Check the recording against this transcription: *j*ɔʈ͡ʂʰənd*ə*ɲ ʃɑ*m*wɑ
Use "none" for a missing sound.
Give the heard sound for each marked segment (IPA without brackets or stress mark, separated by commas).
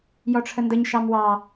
j, ə, m